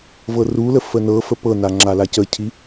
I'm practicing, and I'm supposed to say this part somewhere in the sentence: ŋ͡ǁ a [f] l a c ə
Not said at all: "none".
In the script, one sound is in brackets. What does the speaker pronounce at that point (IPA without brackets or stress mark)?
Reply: none